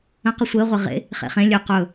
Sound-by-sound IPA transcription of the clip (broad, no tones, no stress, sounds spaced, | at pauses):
ə̃ q ə sʷ ɘː ʁʷ ɘ ʁ ḛ | χ ḛ χ ẽ lʲ ø q ɵ